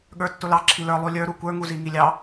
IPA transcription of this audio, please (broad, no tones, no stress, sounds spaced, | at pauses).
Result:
ɠ ə˞ tː ʊ l ɑ ǁʰ i l ə˞ lˠ u lʲ ə˞ ɾ u kʷ ə˞ ŋ u z i ŋ i lʲ ɑ